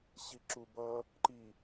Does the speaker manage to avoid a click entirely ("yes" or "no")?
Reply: no